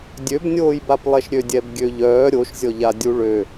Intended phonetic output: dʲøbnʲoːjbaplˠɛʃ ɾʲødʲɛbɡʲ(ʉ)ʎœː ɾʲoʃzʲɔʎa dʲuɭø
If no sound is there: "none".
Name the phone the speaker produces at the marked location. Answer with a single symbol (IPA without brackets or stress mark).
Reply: ø